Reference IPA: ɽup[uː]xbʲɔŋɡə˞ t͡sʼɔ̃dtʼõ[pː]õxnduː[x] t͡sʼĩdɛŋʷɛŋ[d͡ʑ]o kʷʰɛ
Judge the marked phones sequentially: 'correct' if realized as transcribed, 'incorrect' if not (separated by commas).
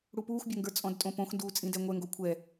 correct, incorrect, incorrect, incorrect